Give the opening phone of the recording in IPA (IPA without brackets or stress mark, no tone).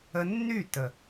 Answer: ə